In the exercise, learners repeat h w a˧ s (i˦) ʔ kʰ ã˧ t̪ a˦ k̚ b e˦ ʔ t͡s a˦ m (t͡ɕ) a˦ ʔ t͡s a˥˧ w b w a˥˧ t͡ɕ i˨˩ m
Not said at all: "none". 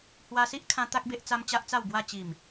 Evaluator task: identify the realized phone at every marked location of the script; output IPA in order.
i˦, t͡ɕ

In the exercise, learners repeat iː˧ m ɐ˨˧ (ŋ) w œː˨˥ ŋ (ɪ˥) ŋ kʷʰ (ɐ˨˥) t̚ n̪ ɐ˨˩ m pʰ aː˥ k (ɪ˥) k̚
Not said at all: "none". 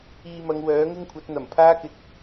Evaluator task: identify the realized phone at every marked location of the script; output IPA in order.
ŋ, ɪ˥, ɐ˨˥, ɪ˨˥

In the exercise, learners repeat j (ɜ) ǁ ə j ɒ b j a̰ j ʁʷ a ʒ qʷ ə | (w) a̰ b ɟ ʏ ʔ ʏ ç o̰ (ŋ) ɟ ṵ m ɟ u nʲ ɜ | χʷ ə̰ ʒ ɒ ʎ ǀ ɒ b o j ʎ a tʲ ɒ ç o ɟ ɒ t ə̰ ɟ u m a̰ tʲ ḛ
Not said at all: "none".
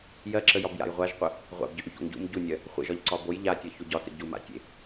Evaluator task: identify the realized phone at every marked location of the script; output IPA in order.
ɜ, ʁʷ, ŋ

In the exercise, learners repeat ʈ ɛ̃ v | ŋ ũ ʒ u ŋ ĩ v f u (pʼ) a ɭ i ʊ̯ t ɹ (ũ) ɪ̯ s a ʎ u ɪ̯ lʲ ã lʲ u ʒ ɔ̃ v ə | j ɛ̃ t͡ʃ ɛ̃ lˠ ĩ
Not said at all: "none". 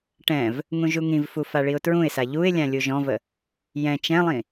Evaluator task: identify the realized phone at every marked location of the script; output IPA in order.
f, ũ

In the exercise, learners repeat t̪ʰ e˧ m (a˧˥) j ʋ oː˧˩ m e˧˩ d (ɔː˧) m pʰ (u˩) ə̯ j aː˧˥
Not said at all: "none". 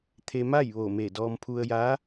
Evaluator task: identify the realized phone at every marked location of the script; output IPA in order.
a˥˨, ɔː˧, u˧

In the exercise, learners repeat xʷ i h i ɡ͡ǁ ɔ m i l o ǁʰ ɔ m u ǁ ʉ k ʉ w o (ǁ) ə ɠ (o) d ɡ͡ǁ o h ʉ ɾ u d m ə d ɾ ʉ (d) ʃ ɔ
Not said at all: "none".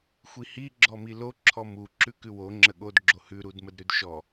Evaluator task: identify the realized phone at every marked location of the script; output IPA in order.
ŋ͡ǁ, o, d

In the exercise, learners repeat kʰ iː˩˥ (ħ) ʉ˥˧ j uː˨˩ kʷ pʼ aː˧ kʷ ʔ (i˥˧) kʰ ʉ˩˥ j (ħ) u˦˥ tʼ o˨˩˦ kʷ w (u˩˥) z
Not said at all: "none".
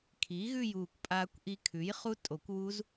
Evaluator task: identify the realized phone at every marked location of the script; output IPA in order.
ɣ, i˧, χ, u˦˥

